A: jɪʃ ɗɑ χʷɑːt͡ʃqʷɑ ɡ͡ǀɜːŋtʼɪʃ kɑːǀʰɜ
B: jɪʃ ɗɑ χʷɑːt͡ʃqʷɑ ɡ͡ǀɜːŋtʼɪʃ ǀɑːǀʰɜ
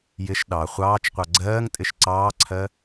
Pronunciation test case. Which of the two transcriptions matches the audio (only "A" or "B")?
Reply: B